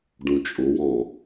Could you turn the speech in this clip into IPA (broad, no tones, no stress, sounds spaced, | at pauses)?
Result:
ɖ ũ t͡ʃʼ ʊ w ɔ̃